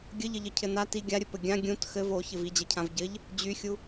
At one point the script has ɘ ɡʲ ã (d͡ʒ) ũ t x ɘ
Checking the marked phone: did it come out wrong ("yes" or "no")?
yes